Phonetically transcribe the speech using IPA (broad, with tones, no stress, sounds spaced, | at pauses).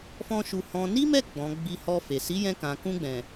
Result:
f ɔ̃˦ ʃ u˧ h ɔ̃˧ n i˦ m ɛ˦˨ ɡ͡b ɔ̃˨ ɡ͡b i˧ h ɔ˧ f e˨ s i˨˦ j ɛ̃˧ k ã˨ k ũ˧ ɡ͡b ɛ̃˨